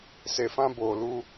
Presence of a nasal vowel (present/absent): present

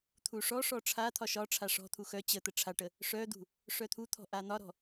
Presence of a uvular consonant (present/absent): absent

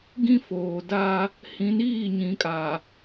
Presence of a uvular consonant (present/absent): absent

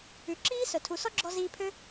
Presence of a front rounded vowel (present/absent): present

